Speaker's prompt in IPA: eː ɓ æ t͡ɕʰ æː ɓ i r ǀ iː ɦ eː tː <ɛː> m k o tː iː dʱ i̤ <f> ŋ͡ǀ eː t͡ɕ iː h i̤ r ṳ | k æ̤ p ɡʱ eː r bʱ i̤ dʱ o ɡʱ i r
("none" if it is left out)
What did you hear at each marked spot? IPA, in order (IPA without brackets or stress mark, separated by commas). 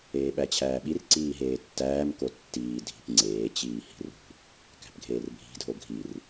æː, p